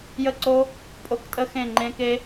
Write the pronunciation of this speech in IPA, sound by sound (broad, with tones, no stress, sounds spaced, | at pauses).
j ə˥˨ ǀ o˦˥ | pʼ o˦˥ k tʼ ə˦˥ x ẽ˥˨ ŋ͡ǃ ẽ˦˥ k e˦˥